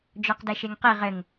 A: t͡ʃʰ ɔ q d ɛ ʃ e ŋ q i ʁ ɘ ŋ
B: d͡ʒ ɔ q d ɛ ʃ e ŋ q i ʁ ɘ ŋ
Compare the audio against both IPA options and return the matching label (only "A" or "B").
B